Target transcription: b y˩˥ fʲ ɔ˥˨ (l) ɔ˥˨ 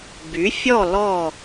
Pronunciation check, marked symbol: correct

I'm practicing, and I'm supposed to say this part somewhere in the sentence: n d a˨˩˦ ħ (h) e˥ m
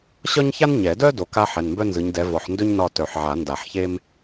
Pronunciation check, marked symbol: incorrect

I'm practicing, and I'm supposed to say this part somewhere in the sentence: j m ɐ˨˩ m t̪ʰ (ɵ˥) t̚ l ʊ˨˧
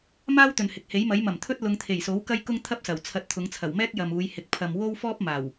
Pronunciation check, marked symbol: correct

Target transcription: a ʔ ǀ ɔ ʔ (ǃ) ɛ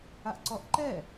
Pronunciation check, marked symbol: correct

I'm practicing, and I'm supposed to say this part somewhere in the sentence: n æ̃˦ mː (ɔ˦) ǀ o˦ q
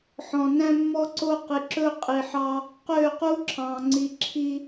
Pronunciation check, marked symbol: correct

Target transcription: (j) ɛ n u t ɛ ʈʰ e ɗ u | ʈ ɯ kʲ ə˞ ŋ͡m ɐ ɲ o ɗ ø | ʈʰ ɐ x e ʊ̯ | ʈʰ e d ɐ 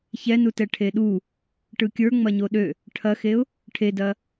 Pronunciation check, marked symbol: incorrect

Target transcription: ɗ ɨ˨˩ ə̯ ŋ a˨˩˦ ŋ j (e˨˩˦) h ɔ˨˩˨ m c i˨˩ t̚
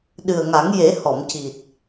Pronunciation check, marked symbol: correct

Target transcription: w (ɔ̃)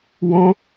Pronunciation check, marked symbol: correct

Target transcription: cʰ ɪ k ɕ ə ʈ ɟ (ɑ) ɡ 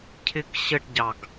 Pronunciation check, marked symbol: correct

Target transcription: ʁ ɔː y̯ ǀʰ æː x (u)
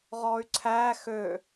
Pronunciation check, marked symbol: incorrect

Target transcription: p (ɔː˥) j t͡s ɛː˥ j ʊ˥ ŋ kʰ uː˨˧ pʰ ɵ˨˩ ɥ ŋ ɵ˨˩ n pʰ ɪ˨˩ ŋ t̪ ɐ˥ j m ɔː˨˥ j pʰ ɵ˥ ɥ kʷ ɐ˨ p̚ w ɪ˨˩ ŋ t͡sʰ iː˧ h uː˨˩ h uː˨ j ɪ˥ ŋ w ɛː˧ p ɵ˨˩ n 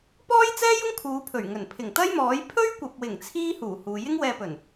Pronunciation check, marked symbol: correct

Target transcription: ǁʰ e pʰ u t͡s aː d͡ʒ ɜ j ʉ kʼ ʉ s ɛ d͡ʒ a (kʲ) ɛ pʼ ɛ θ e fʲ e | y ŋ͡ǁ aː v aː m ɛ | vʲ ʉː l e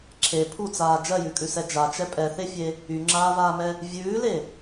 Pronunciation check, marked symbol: incorrect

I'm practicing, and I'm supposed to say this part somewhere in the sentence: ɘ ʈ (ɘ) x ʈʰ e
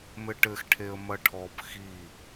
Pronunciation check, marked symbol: correct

